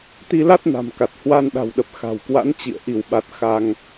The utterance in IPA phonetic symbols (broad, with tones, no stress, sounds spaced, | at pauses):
t̪ i˧ l a˦˥ t̚ n a̤˨˩ m k a˨˩ t̚ h w a˧ n ɗ a̤˨˩ w ɗ ə˨˩ p̚ x a̤˨˩ w k w a̰˧˥ n t͡ɕ ḭ˧˨ ə̯ ʔ i˧˩ w ɓ a˨˩ t̚ x a˧ ŋ